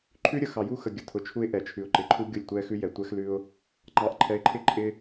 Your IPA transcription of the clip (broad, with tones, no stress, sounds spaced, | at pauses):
ǃʰ ʉ˦ ɾʲ ə˨ x ɑ˨ j u˦ x ə˨ ɡʲ ə˨ tʰ ʊ˨ t͡ʃʰ u˦ ɪ̯ ʔ ɛ˨ t͡ʃʰ ʉ˨ ʊ̯ ǃ ɪ˨ ǃʰ u˦ ɡʲ ʊ˦˨ lʲ tʷ ɛ˦ x ʉ˦ j ɛ˨ tʷ ɛ˦ x l ʉ˦ ʊ̯ | ŋ͡ǃ ɑ˨ ʔ ǃʰ ɛ˨˦ ɪ̯ ǃʰ ɪ˦ ǃʼ ɪ˦